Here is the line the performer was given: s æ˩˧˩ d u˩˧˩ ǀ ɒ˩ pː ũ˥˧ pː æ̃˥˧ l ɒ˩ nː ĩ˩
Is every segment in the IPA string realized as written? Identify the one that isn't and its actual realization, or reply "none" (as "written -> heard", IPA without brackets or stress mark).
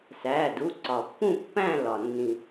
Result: none